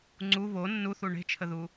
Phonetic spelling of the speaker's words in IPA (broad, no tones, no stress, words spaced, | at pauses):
ŋ͡ǀu βo nːuθu ɳe̤t͡ʃʰəðu